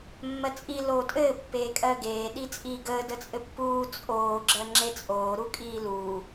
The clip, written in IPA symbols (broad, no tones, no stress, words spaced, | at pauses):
mːɜt͡sʼi loːtʼɘː pːeːkʼɜɡeː ɗit͡sʼiːɡəː dət͡sʼɘpːuː t͡sʼoː ɡ͡ǁɜŋ͡ǁet͡sʼoː ɾukʼiːluː